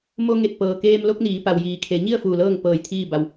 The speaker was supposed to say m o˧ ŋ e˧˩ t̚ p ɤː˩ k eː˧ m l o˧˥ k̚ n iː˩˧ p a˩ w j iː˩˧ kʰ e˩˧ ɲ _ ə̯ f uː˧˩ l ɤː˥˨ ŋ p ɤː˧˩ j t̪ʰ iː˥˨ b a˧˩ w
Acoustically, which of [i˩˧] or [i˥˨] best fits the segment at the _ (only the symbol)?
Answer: i˥˨